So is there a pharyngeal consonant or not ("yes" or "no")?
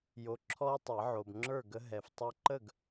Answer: yes